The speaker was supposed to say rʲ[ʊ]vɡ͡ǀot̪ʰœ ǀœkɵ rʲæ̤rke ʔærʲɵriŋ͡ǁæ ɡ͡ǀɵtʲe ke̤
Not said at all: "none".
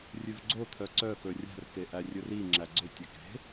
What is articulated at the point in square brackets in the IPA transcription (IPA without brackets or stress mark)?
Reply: ʉ